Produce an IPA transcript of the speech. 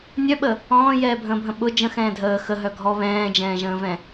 nʲ œ ɓ ə | ɔ̃ː j ɛː bʱ ə̃ː bʱ ə̃ ɓ ʊ d͡ʒ ə̃ x ɛ̃ː dʱ əː x ə ɦ œ ɡʱ ɔ β ɛ̃ː d͡ʒ ɛ̃ː ʒ ə̃ː v ɛ̃

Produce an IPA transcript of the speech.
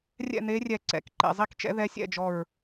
rʲ ɛ̰˥˨ n̪ e˧˥ rʲ ɛ˧˩ ǀ ɛ̰˧˩ k ǃ ḛ˧˩ zˤ i˥˨ k t͡ʃ ɛ̰˧˥ ð ɛ˧˥ sʲ ɛ̰˥˨ d͡ʒ ɔ˧˩ ɹ

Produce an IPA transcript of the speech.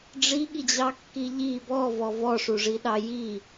ɖ͡ʐ i ɠ i d͡ʑ ɑ kː i ʎ i b ɔ v ɔ v ɔ ʂ u ʐ i ɗ ɑ j i

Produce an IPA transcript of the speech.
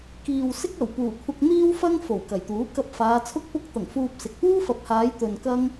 k iː˨ w s ɪ˥ k̚ ɐ˨˩ w p uː˨˩ kʷʰ ɐ˧ k̚ n̪ iː˥ w f ɐ˥ ŋ f o˨˩ w k ɐ˨˩ j t̪ uː˨˥ k ɐ˧ p̚ f aː˨˧ t͡sʰ ʊ˥ k̚ p ʊ˧ k̚ t̪ ɐ˨˩ ŋ f uː˧ p̚ s ɪ˨ k̚ p uː˥ f ɐ˨ p̚ h aː˨˧ j t̪ ɵ˨ n k ɐ˥ ŋ

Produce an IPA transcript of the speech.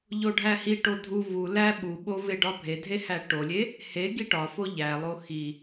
ʎ o ɖʱ æ h i ʈ o dʱ u v u l æ ɓ u ɓ o v e ɖ ɒ bʱ e dʱ e h æ ʈ o lʲ e | h e ɡ i ʈ ɒ f o ʎ æ lˠ o x i

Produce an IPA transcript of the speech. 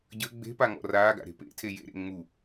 ɟ ə ɡ͡b e̤ p a ŋ ɔ̰ r aː ɡ a̰ ɾ e̤ p ḛ tʰ e j ḛ ɾ ḛ ŋ͡m u

